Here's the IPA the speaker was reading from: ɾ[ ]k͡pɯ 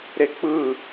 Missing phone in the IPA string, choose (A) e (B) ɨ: A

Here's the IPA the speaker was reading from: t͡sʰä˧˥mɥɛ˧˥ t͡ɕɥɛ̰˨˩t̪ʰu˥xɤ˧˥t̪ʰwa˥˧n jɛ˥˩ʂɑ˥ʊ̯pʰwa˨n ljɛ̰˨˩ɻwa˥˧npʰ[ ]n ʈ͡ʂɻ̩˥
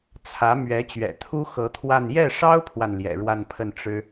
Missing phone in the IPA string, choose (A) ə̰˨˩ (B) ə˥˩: B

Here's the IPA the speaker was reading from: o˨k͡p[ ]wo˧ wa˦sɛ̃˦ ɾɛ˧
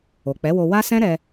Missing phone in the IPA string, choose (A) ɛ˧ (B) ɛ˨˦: B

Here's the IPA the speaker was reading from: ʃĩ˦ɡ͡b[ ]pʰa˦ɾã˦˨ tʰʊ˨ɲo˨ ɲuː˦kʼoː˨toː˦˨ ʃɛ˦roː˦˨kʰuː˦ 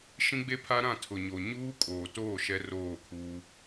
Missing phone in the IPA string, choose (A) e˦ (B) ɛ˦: A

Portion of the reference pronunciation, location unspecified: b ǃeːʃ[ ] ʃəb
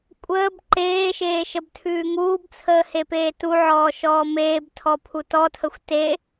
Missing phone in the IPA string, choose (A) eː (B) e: A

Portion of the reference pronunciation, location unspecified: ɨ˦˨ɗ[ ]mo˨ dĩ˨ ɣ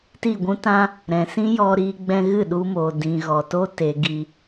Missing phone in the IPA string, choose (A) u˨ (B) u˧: B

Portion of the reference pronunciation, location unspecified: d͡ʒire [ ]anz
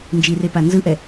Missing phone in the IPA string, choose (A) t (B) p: B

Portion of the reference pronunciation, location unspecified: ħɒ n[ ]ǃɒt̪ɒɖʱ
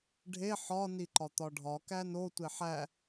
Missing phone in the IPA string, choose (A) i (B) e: A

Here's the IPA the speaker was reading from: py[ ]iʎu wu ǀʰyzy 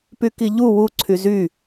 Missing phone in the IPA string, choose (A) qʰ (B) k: B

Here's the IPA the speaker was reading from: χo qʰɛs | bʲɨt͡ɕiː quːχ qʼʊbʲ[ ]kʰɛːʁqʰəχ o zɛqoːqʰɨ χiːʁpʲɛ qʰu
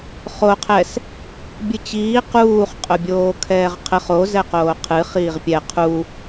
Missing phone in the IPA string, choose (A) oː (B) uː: A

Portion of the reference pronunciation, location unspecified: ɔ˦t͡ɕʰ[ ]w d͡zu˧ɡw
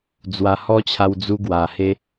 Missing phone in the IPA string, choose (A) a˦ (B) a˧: B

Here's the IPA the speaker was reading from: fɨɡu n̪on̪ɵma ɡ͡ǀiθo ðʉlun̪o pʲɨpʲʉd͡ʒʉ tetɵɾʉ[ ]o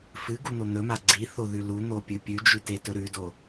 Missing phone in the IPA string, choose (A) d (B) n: A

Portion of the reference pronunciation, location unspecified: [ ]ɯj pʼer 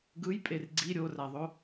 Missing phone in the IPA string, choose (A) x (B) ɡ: B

